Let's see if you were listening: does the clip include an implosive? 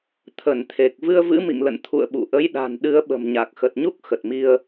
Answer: yes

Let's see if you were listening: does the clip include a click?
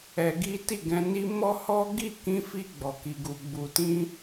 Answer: no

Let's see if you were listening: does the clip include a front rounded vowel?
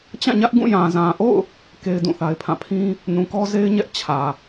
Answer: no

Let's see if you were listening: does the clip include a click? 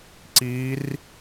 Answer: yes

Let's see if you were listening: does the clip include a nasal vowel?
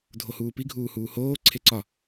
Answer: no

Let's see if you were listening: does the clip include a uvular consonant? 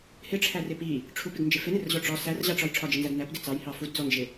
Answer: no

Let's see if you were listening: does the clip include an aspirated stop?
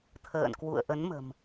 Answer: yes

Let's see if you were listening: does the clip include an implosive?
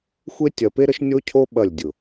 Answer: yes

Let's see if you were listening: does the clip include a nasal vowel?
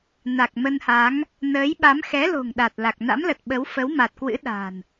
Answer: no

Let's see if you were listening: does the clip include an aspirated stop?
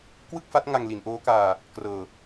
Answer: no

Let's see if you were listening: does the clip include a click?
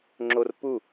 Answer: yes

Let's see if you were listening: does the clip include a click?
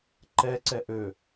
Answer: yes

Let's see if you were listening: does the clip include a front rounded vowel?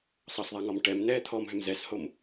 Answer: yes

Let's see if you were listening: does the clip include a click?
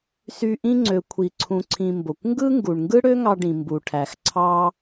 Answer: yes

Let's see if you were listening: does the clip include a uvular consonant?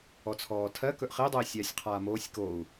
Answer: yes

